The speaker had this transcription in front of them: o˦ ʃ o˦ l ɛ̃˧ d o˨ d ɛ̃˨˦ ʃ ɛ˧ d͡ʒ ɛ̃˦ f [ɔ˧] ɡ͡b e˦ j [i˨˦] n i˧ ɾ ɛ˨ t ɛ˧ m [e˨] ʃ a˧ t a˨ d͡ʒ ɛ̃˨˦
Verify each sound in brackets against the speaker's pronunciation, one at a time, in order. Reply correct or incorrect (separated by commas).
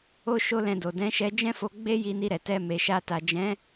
incorrect, incorrect, correct